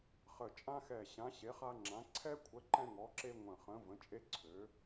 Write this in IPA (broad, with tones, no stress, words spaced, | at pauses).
χə˧˩t͡ʃʼã˦xɛ˧˩ ɕã˨˥ɕe˨˥χa˦ŋ͡ǁã˨˥ ǀʰɛ˦kʷʰə˨˥ ǃɛ̃˦ŋɔ˨˥ǁe˦ ŋʷə̃˧˩χə̃˨˥ və̃˨˥t͡ʃʼe˦ ǀʰø˨˥